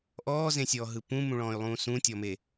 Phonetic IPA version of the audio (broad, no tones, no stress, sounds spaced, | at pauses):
ʔ ɔː z ẽ sʲ ɔː ɦ ɯ p ũ m ũ ɭ ɔ̃ː y̯ lˠ ũː s ũ tʲ ɔ m e